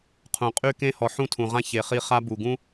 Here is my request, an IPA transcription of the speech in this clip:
qʰũ˨qʼy˦ kẽ˧hɔ˨ ħũ˦˨tʰũ˨ʁã˦ çe˨χi˧χa˦bu˨ ɡũ˦

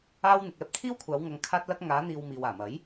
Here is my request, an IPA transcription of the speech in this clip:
aː˥w n̪ɪ˨k̚ɛː˧p̚t̪ʰiː˥wkʷʰaː˨˧w ŋɐ˧ŋkʰaː˥t̚lɐ˥k̚ ŋaː˨˧n̪iː˨w miː˨waː˨˩mɐ˨˥j

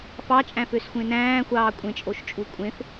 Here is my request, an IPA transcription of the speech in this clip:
fɑt͡ʃʼæ̃føsxʷẽ næ̃ːxʷɑː kʷʼẽt͡ʃʼoʃt͡ʃʼu kʷʼẽf

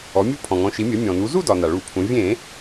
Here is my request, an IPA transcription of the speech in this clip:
ɔ˩˧mʲu˧˥ pʰɔ̃˩ŋɔ̃˩˧ʃi˩˧mʲɜ˩˧ mʲɔ̃˩nu˩˧zu˥˧dɒ˩ na˩ɭu˧˩˧pʰũ˩˧ vʲẽ˧˩˧

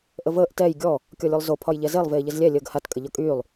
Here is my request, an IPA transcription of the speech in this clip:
ʔəvəːʔ tɛj ɡʲɔ | kʲɔlʲolˠzo pʰɒjʎɛzelˠ veːʎɘzlʲɛ lʲəːɡhat kʼɘʎɒkʼyːlˠ

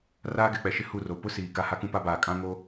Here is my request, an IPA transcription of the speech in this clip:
raː˦ɡɛ˨k͡pɛ˨ʃɪ˦ hu˦˨ro˨ pʊ˦ siː˨ka˦ ha˦kũ˦pa˦baː˨ kʼã˦ŋo˦

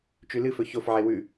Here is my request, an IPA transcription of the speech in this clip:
t͡ʃʉlɨfɵ çofʕe wʉ

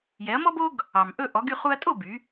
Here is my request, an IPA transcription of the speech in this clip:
jɛ˩˥ɐ̯mɔ˥bo˥ɡ | ɑ˩mʔɵ˥˩ ʔɔ˩˥ɡ y˥˩χu˧ɐ̯tʼo˥˩ by˩˥

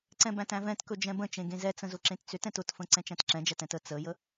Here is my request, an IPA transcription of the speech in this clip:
ǀɛ̃bæ̃tæ̃vɛ̃t kɵd͡ʒɛ̃bə̃ t͡ʃẽɡẽzɛ t͡sə̃zʊǁẽtt͡sʏt ɛ̃tʊtfə̃ ǀɛ̃t͡ʃæ̃tǁɛ̃d͡ʒæt ɛ̃tə t͡səjə

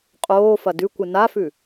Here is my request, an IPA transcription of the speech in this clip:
qʼoː fɐdʉkʷɨ nafʉ

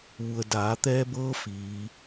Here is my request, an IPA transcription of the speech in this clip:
ʋu˩ə̯daː˩˧t̪ɛː˧bɤː˧ fiː˩˧

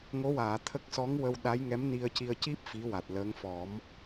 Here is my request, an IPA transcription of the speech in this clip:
ŋo˧˥waː˨˩˨t̪ʰə˦˥k̚ sɔ˧˥ŋ wə˧w ɗa˧˥jŋɛ˧˥m ni˧ə̯ci˧ə̯ ci˦˥p̚ fi˧˥wa˨˩t̚ləː˧˥ŋ fɔ˨˩˦m

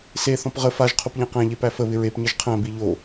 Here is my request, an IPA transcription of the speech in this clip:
se θɔ̃pʁə faʒ qʰopʎæ̃qæ̃ ʎepæfə βɪɹep ɲəʒqʰæ̃ biʎo

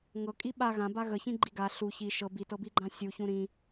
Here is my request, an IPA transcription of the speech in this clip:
ŋɤkʼi ɓa ɣãba ɣəçĩɡ͡ǃi ɡa ɬu çi ʃɤ bitɤbiɡ͡ǃã sʲuçũ ɾĩ

